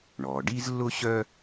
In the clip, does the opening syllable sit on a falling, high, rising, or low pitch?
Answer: low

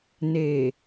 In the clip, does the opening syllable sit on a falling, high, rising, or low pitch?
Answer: low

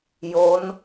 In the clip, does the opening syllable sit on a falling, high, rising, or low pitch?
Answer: rising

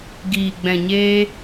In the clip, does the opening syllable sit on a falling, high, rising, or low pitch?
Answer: low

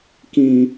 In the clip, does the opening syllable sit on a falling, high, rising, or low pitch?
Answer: low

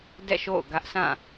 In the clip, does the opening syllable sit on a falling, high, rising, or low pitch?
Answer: falling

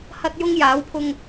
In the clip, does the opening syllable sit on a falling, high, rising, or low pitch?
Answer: high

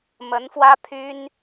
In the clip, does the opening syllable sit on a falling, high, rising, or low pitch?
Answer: rising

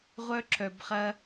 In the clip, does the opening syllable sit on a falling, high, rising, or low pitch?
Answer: high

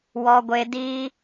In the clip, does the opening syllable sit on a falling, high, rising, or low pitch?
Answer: high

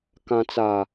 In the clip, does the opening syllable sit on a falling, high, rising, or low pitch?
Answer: low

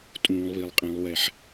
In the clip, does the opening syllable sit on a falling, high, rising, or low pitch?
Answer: low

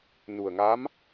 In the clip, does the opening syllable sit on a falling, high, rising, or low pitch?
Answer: low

